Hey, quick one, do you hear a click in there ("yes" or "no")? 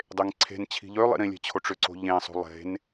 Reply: yes